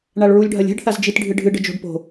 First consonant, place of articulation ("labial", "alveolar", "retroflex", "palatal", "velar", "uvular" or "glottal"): retroflex